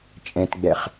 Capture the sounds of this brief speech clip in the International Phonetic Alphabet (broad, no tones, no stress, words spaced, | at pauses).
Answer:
t͡ʃʼɛ̃tɡ͡bɛχ